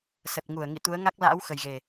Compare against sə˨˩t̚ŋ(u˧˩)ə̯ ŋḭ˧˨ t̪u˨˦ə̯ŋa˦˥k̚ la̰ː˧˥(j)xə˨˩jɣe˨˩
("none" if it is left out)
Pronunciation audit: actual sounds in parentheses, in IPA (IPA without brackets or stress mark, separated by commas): u˧˩, w